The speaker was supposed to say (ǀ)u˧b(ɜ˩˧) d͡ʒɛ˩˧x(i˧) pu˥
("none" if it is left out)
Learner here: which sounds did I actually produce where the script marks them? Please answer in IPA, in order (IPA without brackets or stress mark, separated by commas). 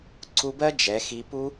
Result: ǀ, ɜ˥, i˧